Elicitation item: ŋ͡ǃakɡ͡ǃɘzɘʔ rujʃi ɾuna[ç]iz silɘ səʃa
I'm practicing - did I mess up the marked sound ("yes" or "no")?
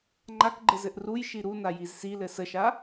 yes